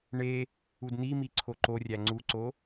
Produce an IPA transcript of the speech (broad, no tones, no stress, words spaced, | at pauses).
ɳe | udn̪imi ǀʰoǃorʲæ ŋ͡ǀuǀo